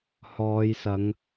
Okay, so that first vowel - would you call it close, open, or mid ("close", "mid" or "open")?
mid